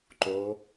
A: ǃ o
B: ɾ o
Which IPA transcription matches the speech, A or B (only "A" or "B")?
A